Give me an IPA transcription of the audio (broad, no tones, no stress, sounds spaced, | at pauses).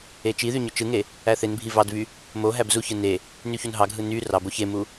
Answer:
e t͡ʃ i ð y ɲ ø t͡ʃ ɯ ŋ e | æ θ e n bʱ i v ɑ d v y | m o ɦ æ b z u ç ɯ n e | n y ç u n ɦ ɑ ɡʱ ɯ n y r ɑ b o ç e m u